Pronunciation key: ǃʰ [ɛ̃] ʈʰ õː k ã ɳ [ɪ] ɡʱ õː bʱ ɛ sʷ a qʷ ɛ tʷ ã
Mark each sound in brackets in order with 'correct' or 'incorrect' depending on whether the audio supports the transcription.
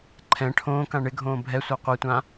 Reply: correct, correct

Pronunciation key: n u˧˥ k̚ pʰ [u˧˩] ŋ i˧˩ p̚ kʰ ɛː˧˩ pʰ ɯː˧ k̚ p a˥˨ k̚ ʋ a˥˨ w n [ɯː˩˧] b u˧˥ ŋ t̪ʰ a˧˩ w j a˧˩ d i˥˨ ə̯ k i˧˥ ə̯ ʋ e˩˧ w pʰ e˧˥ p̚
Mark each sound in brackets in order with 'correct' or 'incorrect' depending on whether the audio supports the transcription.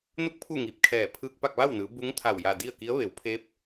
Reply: incorrect, correct

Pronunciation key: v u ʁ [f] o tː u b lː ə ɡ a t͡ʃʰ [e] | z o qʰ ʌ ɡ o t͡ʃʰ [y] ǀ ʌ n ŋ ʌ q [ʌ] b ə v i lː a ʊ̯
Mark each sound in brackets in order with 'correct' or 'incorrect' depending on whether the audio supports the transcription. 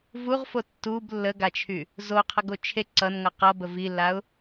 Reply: correct, incorrect, incorrect, correct

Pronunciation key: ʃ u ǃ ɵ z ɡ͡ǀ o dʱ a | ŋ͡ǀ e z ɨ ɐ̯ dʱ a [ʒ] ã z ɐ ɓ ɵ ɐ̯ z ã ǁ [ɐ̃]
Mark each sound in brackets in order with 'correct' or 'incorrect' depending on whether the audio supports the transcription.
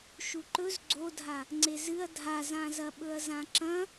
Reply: incorrect, correct

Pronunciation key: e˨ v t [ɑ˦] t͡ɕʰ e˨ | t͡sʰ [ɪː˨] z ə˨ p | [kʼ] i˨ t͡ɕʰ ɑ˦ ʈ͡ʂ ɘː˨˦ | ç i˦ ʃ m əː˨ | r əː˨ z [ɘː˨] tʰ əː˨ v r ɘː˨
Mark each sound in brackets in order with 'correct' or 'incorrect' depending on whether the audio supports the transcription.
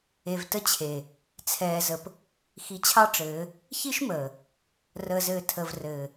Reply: incorrect, incorrect, incorrect, correct

